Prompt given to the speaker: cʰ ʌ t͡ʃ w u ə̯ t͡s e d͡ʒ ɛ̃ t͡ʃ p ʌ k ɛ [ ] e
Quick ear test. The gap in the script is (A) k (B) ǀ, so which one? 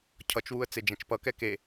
A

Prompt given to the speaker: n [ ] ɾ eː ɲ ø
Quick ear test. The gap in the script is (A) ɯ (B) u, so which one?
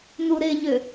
B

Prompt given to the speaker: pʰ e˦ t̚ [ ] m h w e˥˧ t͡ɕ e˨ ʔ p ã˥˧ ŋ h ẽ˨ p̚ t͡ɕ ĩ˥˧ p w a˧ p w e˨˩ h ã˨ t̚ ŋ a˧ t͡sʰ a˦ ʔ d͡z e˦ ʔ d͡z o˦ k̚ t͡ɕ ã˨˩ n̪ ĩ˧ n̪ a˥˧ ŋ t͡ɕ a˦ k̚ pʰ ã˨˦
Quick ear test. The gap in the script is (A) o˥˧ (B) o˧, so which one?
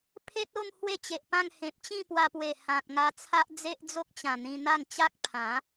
A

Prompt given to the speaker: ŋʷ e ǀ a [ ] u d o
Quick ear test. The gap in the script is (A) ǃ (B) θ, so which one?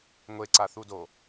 B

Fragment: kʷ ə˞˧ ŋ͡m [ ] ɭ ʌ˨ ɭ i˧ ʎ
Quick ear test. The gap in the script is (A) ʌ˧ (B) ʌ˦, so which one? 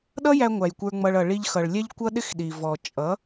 A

